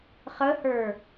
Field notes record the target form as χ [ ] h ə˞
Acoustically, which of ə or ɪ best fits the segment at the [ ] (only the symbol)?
ə